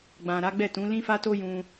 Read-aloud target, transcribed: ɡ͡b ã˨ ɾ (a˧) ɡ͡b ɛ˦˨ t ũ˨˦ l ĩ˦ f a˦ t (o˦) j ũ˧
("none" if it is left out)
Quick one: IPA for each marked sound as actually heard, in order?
a˨˦, o˦

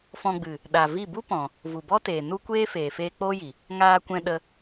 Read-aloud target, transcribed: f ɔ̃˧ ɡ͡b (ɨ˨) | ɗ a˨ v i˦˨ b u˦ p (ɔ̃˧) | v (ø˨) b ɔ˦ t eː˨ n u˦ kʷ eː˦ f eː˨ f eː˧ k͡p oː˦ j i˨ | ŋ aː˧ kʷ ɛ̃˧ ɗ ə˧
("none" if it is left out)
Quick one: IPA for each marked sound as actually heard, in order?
ɨ˨, ɔ̃˨, u˨

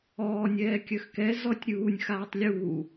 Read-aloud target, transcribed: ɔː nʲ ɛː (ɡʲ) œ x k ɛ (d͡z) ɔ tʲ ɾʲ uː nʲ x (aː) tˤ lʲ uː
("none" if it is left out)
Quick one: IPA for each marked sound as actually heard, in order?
kʲ, z, aː

